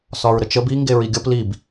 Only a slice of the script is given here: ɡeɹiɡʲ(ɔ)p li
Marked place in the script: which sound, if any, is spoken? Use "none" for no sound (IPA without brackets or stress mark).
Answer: ʌ